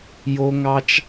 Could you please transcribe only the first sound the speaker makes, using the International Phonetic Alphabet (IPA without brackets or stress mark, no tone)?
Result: j